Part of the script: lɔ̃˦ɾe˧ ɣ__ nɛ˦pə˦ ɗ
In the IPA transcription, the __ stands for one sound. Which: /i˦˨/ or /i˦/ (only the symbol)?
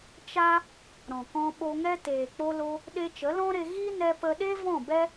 i˦